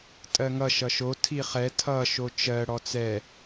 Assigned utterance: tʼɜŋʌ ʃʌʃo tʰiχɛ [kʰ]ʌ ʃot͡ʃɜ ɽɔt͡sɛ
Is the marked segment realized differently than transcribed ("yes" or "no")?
yes